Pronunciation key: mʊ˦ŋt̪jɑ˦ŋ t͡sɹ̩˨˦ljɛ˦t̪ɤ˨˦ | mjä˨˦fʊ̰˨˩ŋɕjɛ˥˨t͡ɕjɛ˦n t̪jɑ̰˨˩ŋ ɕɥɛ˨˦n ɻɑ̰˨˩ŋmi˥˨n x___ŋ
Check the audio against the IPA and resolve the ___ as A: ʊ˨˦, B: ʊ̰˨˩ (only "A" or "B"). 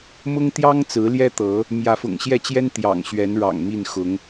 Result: A